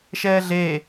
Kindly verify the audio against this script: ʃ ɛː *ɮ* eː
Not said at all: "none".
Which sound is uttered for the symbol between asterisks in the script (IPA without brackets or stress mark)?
ɮ